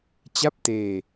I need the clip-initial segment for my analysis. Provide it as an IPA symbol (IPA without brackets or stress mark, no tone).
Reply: t͡ɕ